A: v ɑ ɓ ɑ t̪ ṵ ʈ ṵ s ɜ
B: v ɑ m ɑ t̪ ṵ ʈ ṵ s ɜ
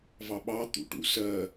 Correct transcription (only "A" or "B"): A